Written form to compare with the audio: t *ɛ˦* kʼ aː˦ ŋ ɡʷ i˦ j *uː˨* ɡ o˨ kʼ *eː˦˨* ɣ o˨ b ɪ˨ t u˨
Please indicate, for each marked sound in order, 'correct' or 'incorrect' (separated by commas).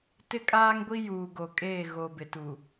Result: incorrect, correct, correct